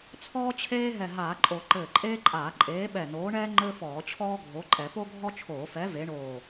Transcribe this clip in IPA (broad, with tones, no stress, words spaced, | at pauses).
t͡sʰɔː˥t͡ɕʰeː˥ ɦɛ˧˩ɦaː˧˩˧ǃʼo˧˩˧ ǃɘː˧˩ǃʼeː˥ǃʼaː˧˩˧ ǃʼeː˨˥ɓɛ˧˩noː˨˥ɳɛː˥ ŋ͡ǃɘ˥fɔː˧˩˧t͡ɕʰɔː˥ɡʱo˨˥ ǃʼɛ˧˩˧po˥ ɡʱɔ˥t͡ʃʰoː˧˩˧fɛ˨˥ ve˨˥ɳoː˧˩